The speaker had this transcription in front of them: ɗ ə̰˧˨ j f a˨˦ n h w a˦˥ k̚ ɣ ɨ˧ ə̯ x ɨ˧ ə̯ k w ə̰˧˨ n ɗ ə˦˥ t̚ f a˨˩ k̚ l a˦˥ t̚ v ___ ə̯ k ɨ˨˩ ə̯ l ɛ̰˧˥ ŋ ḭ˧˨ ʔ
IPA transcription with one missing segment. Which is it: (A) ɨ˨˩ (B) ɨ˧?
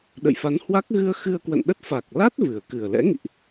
A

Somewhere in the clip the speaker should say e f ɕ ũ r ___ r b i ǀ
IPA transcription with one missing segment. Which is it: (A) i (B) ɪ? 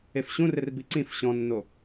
B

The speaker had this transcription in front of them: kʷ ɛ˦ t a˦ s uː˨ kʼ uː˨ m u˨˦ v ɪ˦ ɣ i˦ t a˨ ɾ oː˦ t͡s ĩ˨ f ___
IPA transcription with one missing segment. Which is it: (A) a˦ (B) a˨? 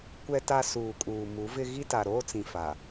B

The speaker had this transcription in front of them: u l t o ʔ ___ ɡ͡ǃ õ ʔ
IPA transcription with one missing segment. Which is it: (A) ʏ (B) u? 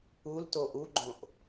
B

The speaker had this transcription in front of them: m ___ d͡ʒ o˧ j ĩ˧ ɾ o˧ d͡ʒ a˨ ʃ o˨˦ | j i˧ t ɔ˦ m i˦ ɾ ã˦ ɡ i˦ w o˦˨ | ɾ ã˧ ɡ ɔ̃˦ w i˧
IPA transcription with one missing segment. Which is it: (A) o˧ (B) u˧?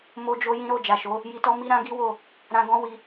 A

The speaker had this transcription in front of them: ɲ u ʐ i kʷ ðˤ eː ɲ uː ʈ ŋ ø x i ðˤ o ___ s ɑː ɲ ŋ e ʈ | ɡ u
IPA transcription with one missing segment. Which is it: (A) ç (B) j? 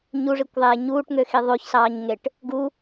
A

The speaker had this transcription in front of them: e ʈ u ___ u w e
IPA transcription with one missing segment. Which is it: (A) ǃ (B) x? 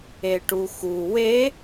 B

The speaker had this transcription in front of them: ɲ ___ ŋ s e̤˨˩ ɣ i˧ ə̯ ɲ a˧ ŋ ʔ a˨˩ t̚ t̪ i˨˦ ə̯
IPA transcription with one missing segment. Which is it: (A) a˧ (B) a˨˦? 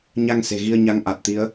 A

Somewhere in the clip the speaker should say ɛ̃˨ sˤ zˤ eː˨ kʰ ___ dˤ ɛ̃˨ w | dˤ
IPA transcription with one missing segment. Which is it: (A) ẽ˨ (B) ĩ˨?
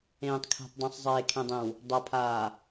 A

